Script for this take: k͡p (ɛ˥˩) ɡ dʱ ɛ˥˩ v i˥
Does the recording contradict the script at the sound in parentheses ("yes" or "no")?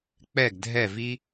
no